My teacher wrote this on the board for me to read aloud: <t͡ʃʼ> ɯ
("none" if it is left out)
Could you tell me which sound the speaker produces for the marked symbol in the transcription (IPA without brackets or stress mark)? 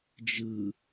d͡ʒ